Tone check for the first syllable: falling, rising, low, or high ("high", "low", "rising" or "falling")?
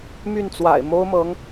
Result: falling